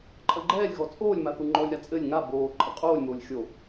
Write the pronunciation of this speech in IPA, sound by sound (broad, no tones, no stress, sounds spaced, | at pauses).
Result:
ǃʼ ɐ ɡ͡ǃ ɛː lʲ ɣ ɔ t͡sʼ oː lʲ m a θ u ŋ͡ǃ ɔ lʲ ɾ a t͡sʼ ɘ lʲ ŋ a b oː ǃʼ ɐ qʼ oː lʲ m oː lʲ xʲ o